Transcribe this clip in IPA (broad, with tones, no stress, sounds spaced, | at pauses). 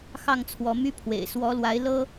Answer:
x ɑ˥˨ ŋ t͡sʰ w ɔ˨˦ m y˦ pʰ w ḛ˨˩ ɪ̯ s w ɔ˨˦ l w a˨˦ ɪ̯ l ɤ˦